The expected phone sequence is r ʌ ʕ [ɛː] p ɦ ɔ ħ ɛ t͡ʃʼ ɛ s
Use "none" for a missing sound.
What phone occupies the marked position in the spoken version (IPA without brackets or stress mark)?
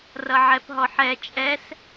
ɛ